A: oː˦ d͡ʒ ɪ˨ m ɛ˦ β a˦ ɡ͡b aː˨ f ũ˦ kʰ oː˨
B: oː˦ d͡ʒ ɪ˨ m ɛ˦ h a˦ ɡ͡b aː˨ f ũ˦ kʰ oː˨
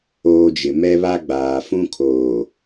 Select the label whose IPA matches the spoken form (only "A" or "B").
A